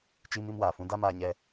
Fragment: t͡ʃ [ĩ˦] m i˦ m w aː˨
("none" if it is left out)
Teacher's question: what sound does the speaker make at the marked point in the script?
i˦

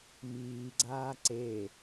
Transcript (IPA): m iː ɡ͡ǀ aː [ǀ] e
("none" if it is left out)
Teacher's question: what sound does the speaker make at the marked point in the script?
ǀ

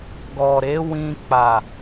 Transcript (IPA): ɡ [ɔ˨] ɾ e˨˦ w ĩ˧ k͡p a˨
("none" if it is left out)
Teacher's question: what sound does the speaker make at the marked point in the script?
ɔ˨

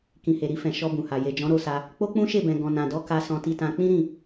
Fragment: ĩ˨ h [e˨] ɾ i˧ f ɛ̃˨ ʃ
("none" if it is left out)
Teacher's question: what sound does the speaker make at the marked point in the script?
e˨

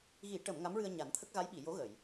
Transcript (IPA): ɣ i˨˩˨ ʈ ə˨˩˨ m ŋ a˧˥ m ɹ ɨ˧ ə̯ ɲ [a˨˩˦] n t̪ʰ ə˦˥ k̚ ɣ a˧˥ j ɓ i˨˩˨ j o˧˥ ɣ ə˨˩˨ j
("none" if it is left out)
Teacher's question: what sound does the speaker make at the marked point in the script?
a˨˩˦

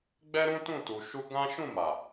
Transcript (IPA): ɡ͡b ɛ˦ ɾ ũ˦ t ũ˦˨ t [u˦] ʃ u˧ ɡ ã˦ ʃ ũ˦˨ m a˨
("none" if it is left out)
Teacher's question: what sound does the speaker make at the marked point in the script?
u˨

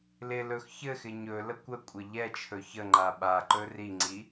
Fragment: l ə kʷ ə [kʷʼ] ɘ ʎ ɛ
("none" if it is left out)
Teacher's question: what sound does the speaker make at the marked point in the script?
kʷʼ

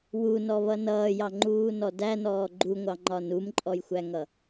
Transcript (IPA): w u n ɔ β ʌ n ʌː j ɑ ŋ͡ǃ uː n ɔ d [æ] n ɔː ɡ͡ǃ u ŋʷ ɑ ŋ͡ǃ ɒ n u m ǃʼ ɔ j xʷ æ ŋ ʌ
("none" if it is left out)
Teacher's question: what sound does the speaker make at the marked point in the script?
æ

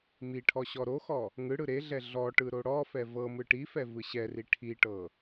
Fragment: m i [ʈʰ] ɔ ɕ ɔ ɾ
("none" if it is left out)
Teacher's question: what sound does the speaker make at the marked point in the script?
ʈʰ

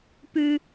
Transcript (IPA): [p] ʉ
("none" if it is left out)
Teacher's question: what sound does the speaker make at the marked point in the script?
p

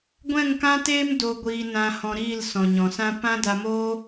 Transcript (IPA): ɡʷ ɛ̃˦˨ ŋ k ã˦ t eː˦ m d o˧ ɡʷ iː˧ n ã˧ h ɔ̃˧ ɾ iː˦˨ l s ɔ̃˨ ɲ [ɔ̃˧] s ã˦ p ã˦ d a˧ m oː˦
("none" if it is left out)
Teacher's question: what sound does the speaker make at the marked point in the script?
ɔ̃˨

